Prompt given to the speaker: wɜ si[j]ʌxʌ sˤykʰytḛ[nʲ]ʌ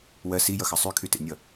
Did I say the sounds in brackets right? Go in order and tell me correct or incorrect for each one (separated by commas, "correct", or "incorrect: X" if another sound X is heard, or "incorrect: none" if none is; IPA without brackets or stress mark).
correct, correct